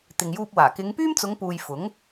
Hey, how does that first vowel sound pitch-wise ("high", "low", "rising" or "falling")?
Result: low